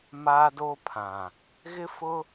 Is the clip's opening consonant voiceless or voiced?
voiced